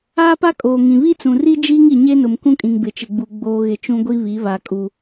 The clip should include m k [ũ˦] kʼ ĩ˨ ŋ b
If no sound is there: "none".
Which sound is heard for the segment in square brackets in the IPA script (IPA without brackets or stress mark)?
ũ˦